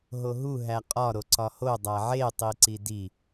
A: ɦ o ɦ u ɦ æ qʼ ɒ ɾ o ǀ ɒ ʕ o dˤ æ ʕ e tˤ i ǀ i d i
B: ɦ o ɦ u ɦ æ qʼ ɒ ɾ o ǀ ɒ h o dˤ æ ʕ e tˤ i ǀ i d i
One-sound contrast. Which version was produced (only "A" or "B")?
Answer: B